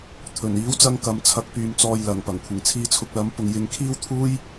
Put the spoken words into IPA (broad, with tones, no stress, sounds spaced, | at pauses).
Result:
t̪ʰ ɵ˨˩ n iː˨˥ w t͡s ɐ˧ ŋ k ɐ˨˧ m t͡sʰ ɐ˨˥ k̚ p yː˨ m t͡s ɔː˧ j l ɐ˨˩ ŋ p ɐ˨˩ ŋ kʷʰ ɪ˨˩ ŋ t͡sʰ iː˧ t͡sʰ ʊ˧ k̚ l ɐ˨˥ m p ʊ˨ ŋ j ɪ˨˥ ŋ kʰ iː˥ w t̪ʰ uː˥ j